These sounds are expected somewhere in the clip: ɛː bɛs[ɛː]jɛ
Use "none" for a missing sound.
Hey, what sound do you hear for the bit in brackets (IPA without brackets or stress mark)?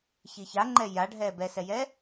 ɛ